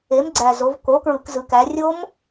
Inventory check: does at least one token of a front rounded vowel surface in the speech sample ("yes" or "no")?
no